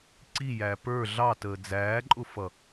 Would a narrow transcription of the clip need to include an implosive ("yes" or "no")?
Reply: no